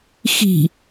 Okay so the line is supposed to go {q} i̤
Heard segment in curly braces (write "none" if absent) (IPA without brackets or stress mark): x